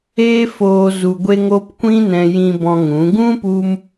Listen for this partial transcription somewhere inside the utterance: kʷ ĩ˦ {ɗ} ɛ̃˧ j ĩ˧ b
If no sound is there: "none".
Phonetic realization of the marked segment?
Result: n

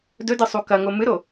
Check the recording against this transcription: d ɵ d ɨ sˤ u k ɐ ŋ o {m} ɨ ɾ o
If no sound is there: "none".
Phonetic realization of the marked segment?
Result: m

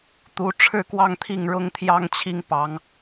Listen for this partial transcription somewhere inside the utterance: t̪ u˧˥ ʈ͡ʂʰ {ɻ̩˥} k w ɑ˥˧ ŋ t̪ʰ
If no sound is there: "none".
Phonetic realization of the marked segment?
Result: ɻ̩˥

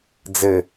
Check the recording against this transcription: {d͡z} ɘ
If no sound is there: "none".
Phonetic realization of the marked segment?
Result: d͡z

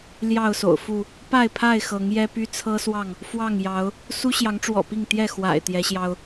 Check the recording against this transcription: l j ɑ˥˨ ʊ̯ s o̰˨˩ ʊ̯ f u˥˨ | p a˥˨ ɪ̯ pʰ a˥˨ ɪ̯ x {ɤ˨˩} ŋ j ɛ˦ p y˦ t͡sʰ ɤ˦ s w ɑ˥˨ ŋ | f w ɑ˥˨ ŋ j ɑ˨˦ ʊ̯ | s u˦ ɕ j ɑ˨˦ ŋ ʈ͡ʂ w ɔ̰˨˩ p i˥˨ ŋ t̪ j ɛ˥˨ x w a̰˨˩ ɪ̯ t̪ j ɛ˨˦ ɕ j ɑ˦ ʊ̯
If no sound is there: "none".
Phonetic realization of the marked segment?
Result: ɤ˨˦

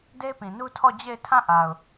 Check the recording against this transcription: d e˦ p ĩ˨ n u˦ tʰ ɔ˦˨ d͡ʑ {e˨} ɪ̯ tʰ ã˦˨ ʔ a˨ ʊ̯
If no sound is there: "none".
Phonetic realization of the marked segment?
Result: e˦˨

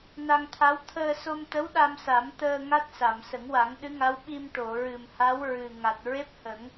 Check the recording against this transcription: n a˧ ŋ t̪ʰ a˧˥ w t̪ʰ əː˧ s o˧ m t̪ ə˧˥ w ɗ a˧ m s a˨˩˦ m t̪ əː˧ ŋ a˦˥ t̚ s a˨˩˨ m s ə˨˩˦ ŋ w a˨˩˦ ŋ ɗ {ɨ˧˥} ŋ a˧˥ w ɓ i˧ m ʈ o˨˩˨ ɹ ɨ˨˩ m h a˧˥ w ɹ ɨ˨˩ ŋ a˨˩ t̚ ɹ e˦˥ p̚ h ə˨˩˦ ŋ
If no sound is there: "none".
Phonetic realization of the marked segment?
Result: ɨ˧˥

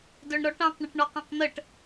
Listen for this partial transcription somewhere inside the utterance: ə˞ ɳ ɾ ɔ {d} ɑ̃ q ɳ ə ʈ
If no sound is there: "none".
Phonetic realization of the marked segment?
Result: ʈ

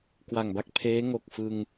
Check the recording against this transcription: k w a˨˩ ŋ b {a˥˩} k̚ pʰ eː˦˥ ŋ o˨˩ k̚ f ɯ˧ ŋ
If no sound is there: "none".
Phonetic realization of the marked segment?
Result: a˥˩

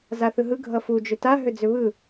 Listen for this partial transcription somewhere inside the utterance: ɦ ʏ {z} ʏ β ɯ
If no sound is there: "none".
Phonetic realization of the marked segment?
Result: d͡z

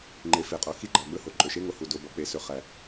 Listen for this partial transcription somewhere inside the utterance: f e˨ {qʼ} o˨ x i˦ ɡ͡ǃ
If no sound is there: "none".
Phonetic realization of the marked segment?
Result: qʼ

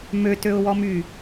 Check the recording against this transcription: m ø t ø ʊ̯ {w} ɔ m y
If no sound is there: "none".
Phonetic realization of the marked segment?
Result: w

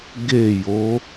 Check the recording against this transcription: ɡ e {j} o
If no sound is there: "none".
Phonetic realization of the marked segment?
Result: j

